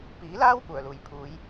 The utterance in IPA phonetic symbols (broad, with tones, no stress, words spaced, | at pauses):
piː˨˥laː˥w kʷœː˨˩luː˨˩jpʰuː˨˥j